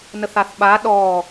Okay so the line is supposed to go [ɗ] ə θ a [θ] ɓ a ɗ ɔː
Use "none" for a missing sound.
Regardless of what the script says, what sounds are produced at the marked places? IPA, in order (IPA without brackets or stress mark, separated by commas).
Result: n, θ